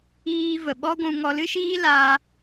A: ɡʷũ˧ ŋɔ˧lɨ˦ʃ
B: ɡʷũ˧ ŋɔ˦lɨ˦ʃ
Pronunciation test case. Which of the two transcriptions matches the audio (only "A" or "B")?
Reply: A